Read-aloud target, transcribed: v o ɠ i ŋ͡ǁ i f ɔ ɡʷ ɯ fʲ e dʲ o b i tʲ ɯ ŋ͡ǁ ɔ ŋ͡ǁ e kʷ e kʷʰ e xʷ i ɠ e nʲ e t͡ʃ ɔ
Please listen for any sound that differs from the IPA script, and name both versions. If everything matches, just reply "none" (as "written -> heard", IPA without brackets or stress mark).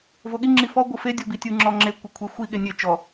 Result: fʲ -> f